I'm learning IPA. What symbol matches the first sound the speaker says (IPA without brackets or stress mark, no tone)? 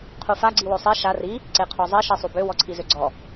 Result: qʰ